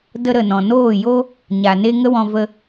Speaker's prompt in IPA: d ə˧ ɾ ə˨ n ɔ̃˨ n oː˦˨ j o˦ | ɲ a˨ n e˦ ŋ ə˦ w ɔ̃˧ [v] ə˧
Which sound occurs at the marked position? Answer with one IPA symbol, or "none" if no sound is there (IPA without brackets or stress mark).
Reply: v